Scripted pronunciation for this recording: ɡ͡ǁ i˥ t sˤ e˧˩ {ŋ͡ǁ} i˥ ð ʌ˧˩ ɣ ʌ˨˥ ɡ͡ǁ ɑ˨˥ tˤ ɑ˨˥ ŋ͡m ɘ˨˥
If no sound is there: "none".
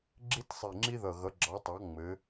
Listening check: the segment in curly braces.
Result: ŋ͡ǁ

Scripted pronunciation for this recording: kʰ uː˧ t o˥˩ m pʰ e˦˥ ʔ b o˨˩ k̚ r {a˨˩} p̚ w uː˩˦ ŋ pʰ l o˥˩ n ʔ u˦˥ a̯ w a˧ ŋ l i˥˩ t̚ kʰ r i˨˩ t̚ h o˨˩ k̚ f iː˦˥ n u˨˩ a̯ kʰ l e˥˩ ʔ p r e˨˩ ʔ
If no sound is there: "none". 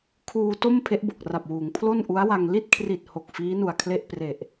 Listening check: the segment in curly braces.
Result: a˨˩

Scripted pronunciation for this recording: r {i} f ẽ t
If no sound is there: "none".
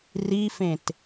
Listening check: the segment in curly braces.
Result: i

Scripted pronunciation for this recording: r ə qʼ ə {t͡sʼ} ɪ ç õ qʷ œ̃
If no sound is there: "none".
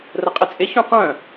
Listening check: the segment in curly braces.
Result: t͡sʼ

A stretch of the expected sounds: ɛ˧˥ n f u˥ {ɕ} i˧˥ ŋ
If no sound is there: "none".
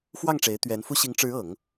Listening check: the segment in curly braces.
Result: ɕ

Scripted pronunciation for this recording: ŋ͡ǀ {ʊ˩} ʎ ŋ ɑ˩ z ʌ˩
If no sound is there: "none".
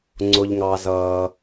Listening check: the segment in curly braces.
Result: ʊ˩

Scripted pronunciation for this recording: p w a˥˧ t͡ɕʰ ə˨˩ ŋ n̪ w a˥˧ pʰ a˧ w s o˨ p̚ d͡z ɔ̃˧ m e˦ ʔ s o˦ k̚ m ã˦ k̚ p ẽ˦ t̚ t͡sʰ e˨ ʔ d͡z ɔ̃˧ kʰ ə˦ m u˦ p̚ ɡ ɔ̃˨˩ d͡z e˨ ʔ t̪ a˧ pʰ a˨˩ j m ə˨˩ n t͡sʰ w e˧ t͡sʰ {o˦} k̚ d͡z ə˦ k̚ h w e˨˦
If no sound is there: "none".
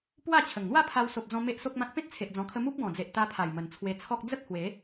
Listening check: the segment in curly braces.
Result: ɔ˦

